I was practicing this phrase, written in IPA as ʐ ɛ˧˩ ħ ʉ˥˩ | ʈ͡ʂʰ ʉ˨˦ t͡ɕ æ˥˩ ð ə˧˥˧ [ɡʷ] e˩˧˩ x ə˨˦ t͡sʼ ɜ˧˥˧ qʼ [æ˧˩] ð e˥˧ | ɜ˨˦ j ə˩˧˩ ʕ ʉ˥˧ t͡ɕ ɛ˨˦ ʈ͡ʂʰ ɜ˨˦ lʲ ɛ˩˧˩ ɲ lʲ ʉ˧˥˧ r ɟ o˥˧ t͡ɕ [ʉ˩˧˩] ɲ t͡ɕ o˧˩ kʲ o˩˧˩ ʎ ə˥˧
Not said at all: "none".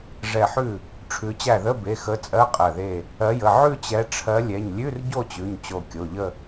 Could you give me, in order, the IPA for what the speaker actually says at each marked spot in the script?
b, ɜ˧˩, ʉ˩˧˩

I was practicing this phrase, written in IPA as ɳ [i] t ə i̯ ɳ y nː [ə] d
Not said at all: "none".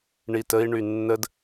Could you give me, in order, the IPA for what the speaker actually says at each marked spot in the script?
i, ə

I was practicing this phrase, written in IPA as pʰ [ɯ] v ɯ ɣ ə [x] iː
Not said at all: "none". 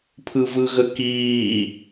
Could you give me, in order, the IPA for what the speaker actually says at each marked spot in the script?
ɯ, k

